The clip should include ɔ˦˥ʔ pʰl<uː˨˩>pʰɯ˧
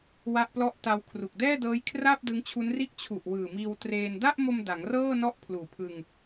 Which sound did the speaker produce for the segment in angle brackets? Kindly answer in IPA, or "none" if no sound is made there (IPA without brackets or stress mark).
uː˨˩